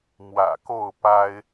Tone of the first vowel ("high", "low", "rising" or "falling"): low